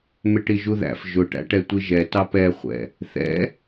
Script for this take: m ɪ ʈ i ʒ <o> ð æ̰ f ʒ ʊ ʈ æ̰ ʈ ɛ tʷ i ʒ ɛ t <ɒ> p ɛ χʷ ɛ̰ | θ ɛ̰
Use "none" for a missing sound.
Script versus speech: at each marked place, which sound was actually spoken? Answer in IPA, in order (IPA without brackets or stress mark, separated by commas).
u, ɑ